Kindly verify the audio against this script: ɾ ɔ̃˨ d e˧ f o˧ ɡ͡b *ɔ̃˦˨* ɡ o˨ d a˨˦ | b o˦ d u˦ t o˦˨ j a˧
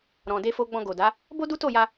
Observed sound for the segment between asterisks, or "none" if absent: ɔ̃˧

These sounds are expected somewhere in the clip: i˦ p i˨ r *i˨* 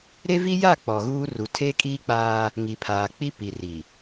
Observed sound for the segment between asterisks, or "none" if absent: i˨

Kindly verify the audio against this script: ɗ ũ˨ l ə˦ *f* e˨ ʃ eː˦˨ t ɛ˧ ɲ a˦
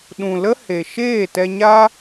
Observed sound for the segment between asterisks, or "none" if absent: h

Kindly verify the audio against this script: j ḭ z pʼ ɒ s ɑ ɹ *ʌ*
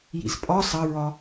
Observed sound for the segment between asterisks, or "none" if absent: ɒ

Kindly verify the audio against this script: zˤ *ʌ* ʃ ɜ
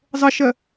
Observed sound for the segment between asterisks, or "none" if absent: ə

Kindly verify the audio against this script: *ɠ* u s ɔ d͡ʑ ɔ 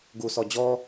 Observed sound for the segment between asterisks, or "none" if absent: ɡ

